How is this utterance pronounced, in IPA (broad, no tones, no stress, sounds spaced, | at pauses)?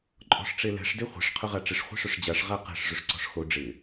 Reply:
ǃʼ ɔ̤ ʂ ʈ͡ʂ e l ɛ̤ ʂ d e χʷ ɛ̤ ʂ qʰ ʊ ʁ a ʈ͡ʂ ɪ ʂ χʷ i̤ ʂ ʊ ʂ d͡ʑ a ʂ ʁ a q ɛ̤ ʂ ʐ ʊ ʂ ǀ ɔ̤ ʂ x o ɖ͡ʐ ɪ